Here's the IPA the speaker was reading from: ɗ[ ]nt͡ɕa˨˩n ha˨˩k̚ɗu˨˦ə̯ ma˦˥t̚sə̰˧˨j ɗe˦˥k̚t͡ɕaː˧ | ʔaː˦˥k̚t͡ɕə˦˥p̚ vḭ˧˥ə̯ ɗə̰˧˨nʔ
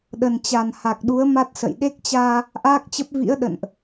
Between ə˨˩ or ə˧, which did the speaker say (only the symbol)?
ə˨˩